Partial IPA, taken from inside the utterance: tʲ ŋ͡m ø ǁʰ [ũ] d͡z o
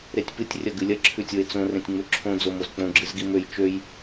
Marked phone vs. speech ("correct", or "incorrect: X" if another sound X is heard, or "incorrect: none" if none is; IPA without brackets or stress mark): incorrect: õ